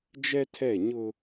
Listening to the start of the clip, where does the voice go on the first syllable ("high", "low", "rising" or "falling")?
high